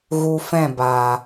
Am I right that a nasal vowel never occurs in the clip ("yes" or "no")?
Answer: no